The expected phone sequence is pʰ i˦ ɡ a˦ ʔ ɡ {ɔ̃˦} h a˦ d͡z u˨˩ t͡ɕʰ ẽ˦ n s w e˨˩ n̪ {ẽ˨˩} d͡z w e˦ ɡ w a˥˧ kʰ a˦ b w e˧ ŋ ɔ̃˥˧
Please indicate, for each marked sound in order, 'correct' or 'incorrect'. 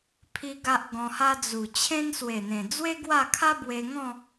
incorrect, correct

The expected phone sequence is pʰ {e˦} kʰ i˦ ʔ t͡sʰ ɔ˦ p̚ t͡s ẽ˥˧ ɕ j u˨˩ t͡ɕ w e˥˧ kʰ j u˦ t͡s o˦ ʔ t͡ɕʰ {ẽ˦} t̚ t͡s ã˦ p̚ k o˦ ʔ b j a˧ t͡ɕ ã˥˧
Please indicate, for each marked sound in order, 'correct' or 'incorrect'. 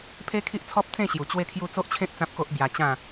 correct, correct

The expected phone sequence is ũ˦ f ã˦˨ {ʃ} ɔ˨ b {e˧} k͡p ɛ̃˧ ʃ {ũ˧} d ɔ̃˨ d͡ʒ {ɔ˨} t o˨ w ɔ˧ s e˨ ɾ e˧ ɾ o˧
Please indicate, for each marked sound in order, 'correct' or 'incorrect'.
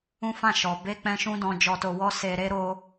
correct, correct, correct, correct

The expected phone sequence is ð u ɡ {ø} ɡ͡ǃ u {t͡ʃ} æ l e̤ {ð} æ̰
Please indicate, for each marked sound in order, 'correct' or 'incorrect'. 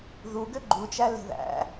correct, correct, correct

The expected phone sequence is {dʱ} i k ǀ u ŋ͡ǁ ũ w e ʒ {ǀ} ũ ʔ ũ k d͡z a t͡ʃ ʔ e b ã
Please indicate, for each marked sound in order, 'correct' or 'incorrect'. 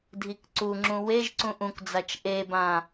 correct, correct

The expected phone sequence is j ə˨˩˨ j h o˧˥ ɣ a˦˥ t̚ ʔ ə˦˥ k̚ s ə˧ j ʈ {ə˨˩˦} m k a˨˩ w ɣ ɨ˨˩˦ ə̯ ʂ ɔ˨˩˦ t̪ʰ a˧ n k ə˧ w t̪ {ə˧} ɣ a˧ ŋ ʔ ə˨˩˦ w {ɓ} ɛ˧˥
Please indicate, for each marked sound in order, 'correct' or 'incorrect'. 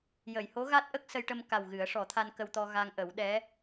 incorrect, incorrect, incorrect

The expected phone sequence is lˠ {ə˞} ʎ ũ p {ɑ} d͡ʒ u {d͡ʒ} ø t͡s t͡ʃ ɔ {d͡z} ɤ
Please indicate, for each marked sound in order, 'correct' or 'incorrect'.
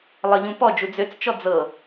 incorrect, incorrect, incorrect, correct

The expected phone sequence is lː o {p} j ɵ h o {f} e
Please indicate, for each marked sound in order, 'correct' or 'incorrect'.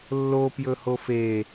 correct, correct

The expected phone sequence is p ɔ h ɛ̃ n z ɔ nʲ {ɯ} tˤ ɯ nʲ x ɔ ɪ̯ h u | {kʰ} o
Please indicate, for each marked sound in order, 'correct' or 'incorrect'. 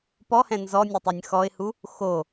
incorrect, incorrect

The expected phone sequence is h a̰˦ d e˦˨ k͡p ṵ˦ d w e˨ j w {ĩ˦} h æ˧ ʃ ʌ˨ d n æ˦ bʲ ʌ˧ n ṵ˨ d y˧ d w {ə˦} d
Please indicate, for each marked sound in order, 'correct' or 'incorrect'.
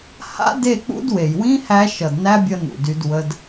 correct, correct

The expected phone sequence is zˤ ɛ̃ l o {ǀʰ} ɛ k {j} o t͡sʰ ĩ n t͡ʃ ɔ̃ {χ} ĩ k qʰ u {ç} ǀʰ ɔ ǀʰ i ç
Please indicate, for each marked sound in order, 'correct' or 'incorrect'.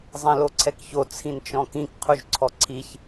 correct, incorrect, incorrect, incorrect

